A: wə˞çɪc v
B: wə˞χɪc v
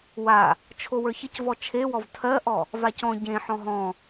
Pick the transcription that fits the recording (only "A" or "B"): A